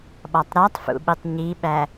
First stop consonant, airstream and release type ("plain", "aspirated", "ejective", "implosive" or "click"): implosive